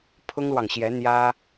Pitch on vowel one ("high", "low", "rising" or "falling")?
high